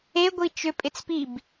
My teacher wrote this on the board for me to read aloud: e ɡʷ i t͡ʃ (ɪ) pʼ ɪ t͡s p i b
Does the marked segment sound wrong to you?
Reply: yes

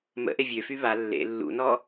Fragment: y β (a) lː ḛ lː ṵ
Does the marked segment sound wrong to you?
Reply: no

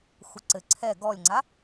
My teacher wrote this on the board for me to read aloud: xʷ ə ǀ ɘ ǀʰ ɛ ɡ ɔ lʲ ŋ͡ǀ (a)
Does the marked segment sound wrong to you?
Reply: no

